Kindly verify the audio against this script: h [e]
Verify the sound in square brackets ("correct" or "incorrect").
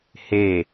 correct